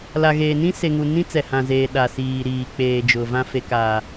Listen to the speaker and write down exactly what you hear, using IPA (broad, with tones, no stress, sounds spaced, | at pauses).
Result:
l a˨ ɣ eː˨ n ĩ˦ s e˨ ŋ u˨ n ĩ˦ t͡s ɛ˨ h ã˨ z eː˨ ɗ a˨ s iː˨ ɾ iː˨ k͡p eː˨ d͡ʒ ʊ˨ v ã˦ f e˨ k aː˨